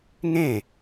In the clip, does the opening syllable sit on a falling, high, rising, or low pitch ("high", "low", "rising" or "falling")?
falling